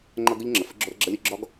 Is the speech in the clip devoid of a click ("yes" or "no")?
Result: no